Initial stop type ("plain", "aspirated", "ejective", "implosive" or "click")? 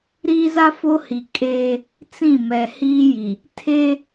ejective